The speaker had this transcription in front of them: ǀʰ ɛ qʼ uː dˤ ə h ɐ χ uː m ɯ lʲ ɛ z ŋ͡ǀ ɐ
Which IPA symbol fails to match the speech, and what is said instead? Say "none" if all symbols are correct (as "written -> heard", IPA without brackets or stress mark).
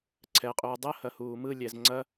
χ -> h